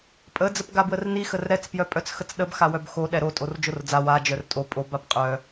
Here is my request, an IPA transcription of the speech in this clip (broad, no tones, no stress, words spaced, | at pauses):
pʼə d͡zəpɡabwərni xərɾɛt͡s pjœpʼœt͡sxət͡sɗəb xawœbxo ɗɛɾo tʼord͡ʒord͡za wa d͡ʒœrtʼo pʼo bapqʼœ